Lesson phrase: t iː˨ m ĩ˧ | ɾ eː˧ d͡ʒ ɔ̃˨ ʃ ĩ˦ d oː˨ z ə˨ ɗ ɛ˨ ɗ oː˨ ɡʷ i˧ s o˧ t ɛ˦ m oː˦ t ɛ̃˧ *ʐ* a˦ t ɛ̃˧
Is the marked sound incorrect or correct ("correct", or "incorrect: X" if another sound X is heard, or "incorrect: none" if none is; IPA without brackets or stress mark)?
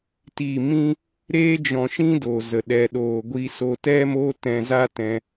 incorrect: z